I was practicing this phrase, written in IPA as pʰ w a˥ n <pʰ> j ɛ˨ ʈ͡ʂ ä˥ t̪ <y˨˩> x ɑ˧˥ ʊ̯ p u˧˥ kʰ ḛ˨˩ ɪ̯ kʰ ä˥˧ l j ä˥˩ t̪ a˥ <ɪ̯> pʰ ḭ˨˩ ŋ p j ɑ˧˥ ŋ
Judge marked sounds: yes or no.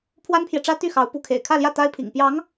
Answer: yes, no, yes

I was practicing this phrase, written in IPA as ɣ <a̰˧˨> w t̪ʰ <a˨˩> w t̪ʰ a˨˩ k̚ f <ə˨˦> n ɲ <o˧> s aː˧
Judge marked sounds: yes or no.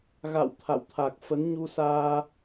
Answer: yes, no, yes, no

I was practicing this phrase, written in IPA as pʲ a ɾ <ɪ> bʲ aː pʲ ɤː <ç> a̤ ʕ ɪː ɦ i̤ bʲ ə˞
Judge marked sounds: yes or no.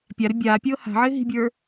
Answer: yes, no

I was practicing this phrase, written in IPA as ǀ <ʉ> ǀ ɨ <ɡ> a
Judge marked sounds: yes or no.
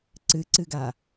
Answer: no, yes

